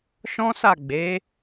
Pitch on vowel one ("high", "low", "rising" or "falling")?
high